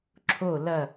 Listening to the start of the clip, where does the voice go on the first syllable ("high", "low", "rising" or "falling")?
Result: falling